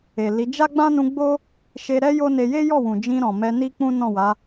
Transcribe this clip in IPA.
e˨ l i˨˦ d͡ʒ a˦ ɡ͡b ã˦ n ũ˧ ɡ͡b o˦ | ʃ e˧ ɾ ɛ˦ j o˦ n e˧ j e˦ j ɔ˦˨ w ũ˨ d͡ʒ ĩ˧ ɾ ɔ̃˨ m ɛ˧ n i˦ k͡p ũ˦ n ɔ̃˦˨ w a˨˦

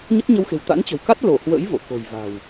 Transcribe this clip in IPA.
ɲ ə˦˥ t̚ ɲ ə˧ w x e̤˨˩ w t̪ a̰˧˥ n t͡ɕ ə̤˨˩ w k a˦˥ t̚ l o˧˩ h w ə̰˧˥ j v o̰˧˨ k o̤˨˩ j v a̤˨˩ w

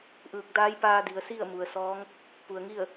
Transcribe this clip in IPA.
ʔ ɯː˧˩ k̚ d aː˧˥ j p aː˧ d i˩˧ ə̯ s i˥˨ ə̯ m u˩ ə̯ s ɔː˧˥ ŋ | p u˩ ə̯ ŋ i˥˨ ə̯

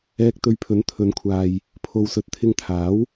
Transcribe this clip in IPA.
ɛː˧ k̚ t̪ ɵ˧ ɥ pʰ ɵ˨˥ n t̪ʰ ɵ˨˧ n kʷʰ aː˨ j | pʰ o˨ w s ɵ˨˥ t̚ t̪ʰ ɪ˧ ŋ t̪ʰ aː˨˥ w

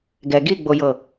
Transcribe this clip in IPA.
ɡ ɛ ɡ i ɡ͡b o j ɤ

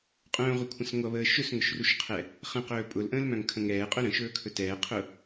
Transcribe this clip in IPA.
qʼ œ̃ː ʁʷ ə kʷʰ ə̃ s ŋʷ ʌ β əː ʃ ɵ s ŋ ʊ ʃ r u ʃ qʰ ɛ | χ ə̃ q ɵː pʼ ʊ l ʔ ə̃ː l m œ̃ ŋ kʰ ə̃ ŋ ɛː qʼ œ ɾ ə̃ ʃ ɵː kʰ ɵ t ɛː qʰ ʊ

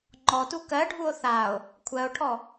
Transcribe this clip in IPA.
ŋ͡ǃ ɔ t u k ɜ ɖʱ u o̯ θ a o̯ | kʷʰ ɜ o̯ ʈʰ ɔ

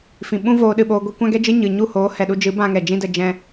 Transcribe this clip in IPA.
f ĩ˨ ɓ ũ˦ v oː˧ ɗ ɨ˦˨ ɓ oː˧ ɡʷ ɛ˦ kʷ ã˦ ɡ ɛ˦ d͡ʒ ɨ˦ ɲ ɨ˨ ɲ u˦˨ h oː˨˦ h ɛ˨ ɗ u˧ d͡ʒ ɨ˨˦ b ã˧ ŋ ɛ˨ d͡ʒ ĩ˦ d ə˧ d͡ʒ ɛ̃˦

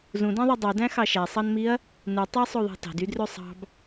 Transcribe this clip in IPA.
z ũ d æ̃ ðˤ ø dˤ y d æ̃ x ɑ ʃ æ sˤ ɑ n m i ɐ̯ | n ɯ tˤ æ sˤ o ðˤ ɑ̤ t ɑ̤ d y d r ø sˤ ɑ̤ b

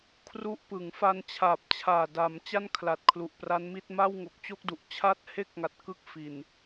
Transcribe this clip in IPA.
kʰ r u˦˥ ʔ p ɯ˩˦ ŋ f a˧ n t͡ɕʰ aː˨˩ p̚ t͡ɕʰ aː˨˩ d a˩˦ m t͡ɕ a˥˩ n kʰ l a˨˩ t̚ kʰ l u˨˩ ʔ p r a˦˥ n m i˥˩ t̚ m a˥˩ w ŋ o˨˩ k̚ t͡ɕ o˥˩ k̚ d u˨˩ ʔ t͡ɕʰ a˦˥ t̚ h e˦˥ k̚ ŋ a˨˩ t̚ k ɯ˥˩ k̚ f i˨˩ n

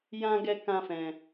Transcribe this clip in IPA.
j ã˦ ɡ ɛ˦ k ã˦ f ɛ̃˧

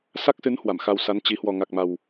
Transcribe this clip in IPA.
s a˦˥ k̚ s ɨ˨˦ n h w a˧˩ m x a˧ w s a˨˦ n t͡ɕ i˨˦ h w ɔ˨˩ ŋ a˨˩ k̚ m a˨˩ w

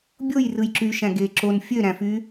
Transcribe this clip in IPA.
bʲ o j r ɯ j ǁ y ʃ æ̃ ɡ e ǁ o n fʲ ø ɾ æ̃ f y

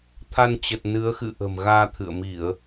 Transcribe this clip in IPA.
t̪ʰ a˧ n t͡ɕ ə˨˩ t̚ n ɨ˨˦ ə̯ x ɨ̰˧˨ ʔ ə̤˨˩ m ɣ aː˧ t̪ʰ ɨ̰˧˨ ə̯ m i˧˩˨ ə̯

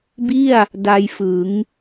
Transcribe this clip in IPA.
b i˥˩ a̯ | d a˧ j f ɯ˩˦ ŋ

